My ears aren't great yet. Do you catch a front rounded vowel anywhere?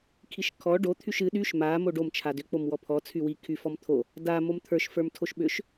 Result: yes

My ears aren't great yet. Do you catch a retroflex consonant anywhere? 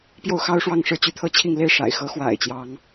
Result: yes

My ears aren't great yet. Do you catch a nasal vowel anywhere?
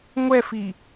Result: no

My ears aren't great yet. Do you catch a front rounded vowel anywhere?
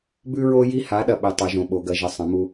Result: no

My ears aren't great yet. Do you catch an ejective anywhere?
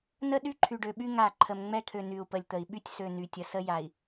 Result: no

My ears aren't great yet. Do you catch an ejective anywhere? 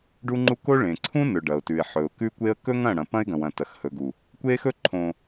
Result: no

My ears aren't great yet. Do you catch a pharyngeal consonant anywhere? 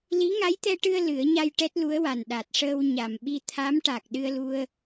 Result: no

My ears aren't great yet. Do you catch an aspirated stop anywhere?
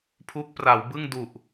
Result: yes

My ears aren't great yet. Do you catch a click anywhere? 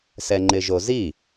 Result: yes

